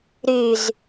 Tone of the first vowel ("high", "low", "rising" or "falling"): low